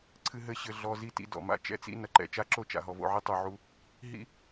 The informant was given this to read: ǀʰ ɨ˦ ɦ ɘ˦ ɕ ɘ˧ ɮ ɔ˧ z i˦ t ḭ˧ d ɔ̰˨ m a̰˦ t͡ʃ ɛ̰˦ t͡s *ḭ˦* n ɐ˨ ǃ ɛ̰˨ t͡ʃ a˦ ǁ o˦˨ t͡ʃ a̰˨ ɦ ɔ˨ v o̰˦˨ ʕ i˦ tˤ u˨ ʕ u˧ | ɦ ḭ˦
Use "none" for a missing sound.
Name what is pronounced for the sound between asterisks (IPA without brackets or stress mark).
ḭ˦